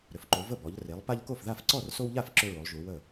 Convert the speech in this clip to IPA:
ɾʏ˩˧fǃo˩˧ və˥˩bɔ˩˧ʎ re˩˧lˠpa˦ʎko˥˩fða˥˩f ǀɔ˥˩rso˦wʎa˥˩f ǁʏ˦ɹo˩˧lˠʒu˩˧ wə˥˩

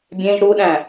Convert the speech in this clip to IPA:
bʲẽʒ ɾuɗæ̃

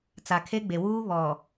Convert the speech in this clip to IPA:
t͡sa˨kʰe˦ɡ͡be˨wuː˦ βɔ˨

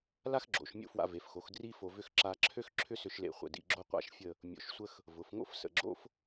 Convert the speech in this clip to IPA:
la˥xɡ͡ǁo̰˩˧ʃ mʲo̰˥fwa̰˧ve˩˧fxo˩˧x dri˥fo˧vʏ˥˧x ǁa˧ǁʰø˥x ǁʰʏ˥sʏ˧ʃlḛ˧˩χʷə̰˧˩ dḭ˧ɡ͡ǁo˥qʷa̰˥ʃfʲə˥˧ | mʲo̰˧ʃsʷə˥x | vʊ˩˧fŋo̰˥fsə̰˧˩ɡ͡ǁo̰˥f

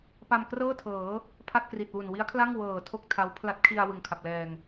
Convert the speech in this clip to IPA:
pa˧mkrɤː˥˩tʰɤː˩˦ | pʰa˥˩t̚kri˨˩t̚wu˨˩n wi˦˥a̯kʰla˥˩ŋ wɤː˨˩ tʰo˥˩k̚tʰa˦˥w pʰla˦˥t̚ kʰi˧a̯ wɯ˨˩ŋ kʰa˨˩p̚lɛː˨˩ŋ

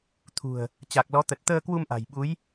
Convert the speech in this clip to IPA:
t̪ʰṳ˨˩ə̯ | t͡ɕa˨˩k̚lɔ˨˦t̪ə˨˩t̚ t̪əː˧kwu˧mʔa̤˨˩jɓu˨˦j

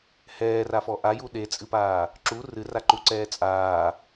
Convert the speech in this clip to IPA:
hɛːrafɔ ʔaju ɗet͡sʼɨpaː | ǁu rɨraǃuǀɛː t͡sʼaː

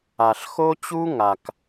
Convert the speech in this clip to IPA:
a˩ɬ xo˥t͡ɕu˥ŋa˩k

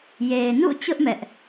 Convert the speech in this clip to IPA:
je˨ɪ̯nṵ˦˨t͡ɕʊ˦ʔ mɛ˦ʔ

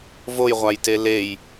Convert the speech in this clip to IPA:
vojʁʷajte lej

